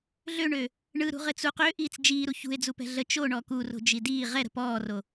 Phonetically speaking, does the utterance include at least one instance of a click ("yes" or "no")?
no